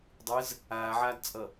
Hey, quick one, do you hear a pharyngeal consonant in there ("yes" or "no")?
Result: yes